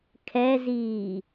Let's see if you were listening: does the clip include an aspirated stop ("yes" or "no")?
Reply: yes